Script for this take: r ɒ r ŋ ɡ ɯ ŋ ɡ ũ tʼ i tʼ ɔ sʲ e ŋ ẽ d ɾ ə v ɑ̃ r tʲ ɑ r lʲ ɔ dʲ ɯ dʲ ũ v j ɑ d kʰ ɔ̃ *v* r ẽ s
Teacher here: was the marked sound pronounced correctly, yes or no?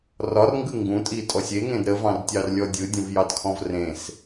yes